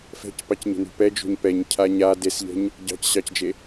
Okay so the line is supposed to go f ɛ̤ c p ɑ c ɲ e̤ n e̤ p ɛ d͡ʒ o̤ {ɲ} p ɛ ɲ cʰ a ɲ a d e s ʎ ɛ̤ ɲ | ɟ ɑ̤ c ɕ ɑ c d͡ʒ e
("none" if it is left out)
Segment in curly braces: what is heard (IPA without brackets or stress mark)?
ɲ